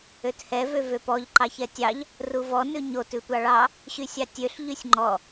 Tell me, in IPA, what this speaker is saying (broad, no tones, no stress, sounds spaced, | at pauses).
ø t h ɛ v ø v ø p ɔ ʎ ǃ ɑ ç ɛ tʲ ɑ ʎ | r u v ɔ n ʉ ɲ o t ʉ tʷ ɑ ɭ ɑ | ɕ y sʲ ɑ tʲ ø ɬ ʎ y sʲ ŋ͡ǃ ɔ